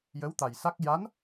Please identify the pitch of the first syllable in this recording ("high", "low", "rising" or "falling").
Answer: rising